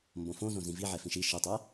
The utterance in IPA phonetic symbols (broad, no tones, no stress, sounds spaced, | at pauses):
m b õ f õ z õ z ĩ v i ʕ ɛ f ĩ ʃ i ʃ i tˤ ɛ